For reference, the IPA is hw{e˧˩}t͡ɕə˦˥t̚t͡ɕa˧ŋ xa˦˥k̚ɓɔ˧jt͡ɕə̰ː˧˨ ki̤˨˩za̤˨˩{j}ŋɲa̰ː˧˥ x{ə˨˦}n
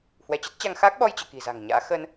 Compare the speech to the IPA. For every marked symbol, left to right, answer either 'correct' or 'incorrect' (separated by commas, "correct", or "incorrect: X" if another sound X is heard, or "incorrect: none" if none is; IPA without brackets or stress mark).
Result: incorrect: ɛ˧˩, incorrect: none, incorrect: ə˧